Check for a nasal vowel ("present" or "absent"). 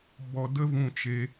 present